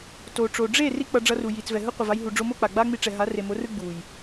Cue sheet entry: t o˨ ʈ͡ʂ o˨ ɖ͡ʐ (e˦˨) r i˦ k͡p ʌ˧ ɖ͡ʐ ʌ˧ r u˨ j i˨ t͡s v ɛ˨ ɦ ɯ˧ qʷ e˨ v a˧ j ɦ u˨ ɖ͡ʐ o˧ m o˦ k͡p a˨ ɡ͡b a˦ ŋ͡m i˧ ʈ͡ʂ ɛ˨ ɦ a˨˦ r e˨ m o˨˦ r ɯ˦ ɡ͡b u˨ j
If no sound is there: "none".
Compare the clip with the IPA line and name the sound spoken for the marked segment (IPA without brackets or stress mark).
e˦˨